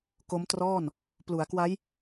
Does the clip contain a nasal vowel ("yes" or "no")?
no